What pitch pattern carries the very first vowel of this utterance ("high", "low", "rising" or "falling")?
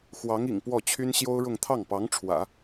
rising